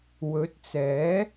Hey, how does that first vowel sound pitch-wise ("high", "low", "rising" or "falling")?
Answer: rising